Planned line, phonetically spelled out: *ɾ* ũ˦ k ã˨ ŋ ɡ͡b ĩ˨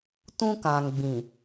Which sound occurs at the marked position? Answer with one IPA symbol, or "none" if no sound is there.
t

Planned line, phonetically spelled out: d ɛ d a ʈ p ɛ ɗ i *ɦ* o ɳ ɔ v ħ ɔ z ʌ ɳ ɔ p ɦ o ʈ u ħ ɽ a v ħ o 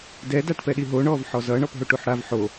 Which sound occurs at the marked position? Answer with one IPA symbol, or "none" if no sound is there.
ɦ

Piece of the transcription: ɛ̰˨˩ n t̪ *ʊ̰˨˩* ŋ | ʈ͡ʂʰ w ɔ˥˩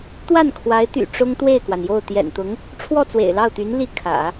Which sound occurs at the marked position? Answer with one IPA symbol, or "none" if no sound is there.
ʊ˧˥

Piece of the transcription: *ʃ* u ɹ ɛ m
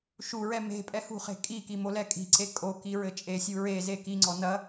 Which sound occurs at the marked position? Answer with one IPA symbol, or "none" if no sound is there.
ʃ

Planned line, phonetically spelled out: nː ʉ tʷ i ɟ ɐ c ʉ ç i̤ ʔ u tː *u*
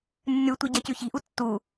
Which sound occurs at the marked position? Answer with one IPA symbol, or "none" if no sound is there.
u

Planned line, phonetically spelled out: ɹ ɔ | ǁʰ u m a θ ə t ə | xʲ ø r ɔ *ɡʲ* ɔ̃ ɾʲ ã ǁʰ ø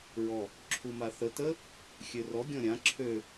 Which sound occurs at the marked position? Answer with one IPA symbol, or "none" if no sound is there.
ɡʲ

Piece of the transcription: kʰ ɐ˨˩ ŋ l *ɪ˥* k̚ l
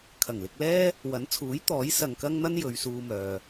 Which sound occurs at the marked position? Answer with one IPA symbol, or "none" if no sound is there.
ɪ˧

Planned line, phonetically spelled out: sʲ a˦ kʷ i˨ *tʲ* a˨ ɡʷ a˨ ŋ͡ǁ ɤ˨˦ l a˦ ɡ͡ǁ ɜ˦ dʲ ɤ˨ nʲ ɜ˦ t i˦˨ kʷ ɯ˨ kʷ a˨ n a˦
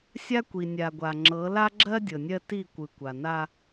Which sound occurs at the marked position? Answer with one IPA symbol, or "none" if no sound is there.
nʲ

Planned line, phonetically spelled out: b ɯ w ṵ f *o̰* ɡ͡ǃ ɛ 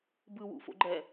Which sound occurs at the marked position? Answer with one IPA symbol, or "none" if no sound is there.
o̰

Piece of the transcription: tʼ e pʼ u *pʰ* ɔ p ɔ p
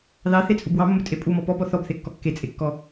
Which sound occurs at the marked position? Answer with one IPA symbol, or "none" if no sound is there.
m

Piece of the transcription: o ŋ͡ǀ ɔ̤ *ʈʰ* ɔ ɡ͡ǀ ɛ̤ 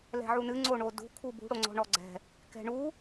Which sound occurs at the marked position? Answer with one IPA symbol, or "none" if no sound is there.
ɳ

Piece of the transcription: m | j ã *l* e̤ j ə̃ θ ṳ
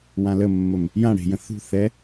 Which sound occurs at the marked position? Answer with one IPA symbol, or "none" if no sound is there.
ɽ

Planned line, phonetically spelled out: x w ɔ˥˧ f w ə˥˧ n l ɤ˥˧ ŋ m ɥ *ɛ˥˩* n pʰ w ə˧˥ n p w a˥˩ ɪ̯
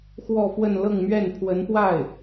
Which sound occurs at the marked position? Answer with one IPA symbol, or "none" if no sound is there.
ɛ˥˩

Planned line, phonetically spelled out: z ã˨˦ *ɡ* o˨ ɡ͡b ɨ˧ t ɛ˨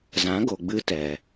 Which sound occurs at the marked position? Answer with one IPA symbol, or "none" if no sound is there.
ɡ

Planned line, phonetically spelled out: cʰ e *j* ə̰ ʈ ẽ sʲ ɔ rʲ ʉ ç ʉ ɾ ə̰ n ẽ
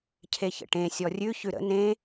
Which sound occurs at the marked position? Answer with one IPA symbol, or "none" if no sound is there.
ç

